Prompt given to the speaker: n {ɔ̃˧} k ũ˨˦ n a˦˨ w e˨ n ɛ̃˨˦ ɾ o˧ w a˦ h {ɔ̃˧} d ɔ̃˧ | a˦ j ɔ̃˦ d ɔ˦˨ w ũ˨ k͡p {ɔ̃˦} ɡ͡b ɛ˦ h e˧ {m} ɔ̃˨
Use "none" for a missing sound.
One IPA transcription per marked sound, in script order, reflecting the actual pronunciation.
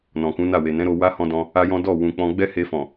ɔ̃˨, ɔ̃˧, ɔ̃˧, f

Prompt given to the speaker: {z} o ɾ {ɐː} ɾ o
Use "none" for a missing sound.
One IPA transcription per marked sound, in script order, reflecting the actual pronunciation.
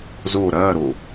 z, ɐː

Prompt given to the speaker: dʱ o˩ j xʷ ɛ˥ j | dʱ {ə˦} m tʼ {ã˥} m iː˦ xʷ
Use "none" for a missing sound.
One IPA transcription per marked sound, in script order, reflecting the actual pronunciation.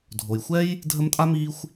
ə˦, a˥

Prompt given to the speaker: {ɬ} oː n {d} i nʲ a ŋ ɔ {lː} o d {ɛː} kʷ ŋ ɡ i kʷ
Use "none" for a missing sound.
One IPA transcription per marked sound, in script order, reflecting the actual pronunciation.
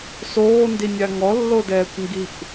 s, d, lː, ɛː

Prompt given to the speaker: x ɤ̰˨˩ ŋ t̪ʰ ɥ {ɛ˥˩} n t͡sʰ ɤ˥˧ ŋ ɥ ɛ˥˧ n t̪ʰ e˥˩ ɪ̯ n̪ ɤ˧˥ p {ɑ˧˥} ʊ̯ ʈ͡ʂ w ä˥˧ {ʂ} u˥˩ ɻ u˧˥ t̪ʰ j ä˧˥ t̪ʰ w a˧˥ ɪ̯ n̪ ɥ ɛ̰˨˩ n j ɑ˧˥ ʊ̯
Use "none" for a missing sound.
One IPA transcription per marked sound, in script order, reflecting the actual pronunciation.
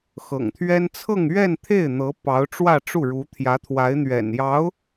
ɛ˥, ɑ˧˥, ʈ͡ʂ

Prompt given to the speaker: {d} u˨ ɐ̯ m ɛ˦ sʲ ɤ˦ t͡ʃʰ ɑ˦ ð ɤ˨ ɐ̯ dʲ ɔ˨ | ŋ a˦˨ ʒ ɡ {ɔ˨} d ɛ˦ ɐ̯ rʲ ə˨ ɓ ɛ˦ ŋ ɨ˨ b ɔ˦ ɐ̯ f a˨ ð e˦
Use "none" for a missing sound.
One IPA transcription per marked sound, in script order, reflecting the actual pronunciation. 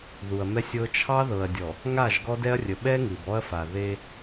ð, ɔ˦

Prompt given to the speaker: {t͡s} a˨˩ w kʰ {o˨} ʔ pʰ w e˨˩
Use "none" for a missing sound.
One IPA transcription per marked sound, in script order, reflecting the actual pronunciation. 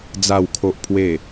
d͡z, o˨

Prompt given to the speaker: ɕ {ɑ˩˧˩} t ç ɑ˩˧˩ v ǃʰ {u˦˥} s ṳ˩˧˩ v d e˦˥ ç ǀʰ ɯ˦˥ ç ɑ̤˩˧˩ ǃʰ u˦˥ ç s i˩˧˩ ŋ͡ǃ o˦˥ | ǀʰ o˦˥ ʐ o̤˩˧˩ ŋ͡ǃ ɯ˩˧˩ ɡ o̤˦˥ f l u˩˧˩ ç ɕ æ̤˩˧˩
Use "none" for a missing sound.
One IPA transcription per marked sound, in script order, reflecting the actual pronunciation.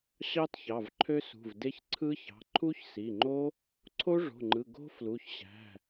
ɑ˦˥, ø˦˥

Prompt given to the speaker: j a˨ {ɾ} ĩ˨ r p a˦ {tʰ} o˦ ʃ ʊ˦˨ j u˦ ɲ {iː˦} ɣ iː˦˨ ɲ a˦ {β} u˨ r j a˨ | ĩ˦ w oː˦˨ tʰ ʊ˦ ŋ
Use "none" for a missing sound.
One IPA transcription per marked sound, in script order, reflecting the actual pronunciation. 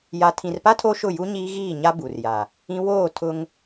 tʰ, tʰ, iː˦, b

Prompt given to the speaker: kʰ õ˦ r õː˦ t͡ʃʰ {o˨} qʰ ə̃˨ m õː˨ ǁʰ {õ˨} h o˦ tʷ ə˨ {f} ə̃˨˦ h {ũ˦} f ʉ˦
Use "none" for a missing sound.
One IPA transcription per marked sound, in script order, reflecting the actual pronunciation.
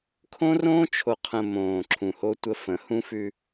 o˨, ũ˨, f, ũ˦

